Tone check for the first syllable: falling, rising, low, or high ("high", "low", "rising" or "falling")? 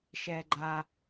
low